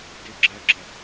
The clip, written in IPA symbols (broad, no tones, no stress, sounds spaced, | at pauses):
d ɪ ɡ͡ǁ ɜ ɡ͡ǁ ɜ